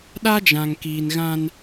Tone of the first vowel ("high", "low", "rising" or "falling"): high